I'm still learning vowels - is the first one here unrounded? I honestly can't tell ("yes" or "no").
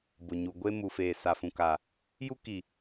no